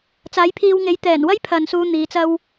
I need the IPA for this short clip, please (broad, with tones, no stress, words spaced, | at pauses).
t͡saː˨˥jpʰiː˧wŋe˨˥j t̪ɛː˨˩nwɐ˥j pʰɐ˨˧nsuː˧ n̪iː˨˥t͡sɐ˥w